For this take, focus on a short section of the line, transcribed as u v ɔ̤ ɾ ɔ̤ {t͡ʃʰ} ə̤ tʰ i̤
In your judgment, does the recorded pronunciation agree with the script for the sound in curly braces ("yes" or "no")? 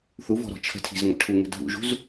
yes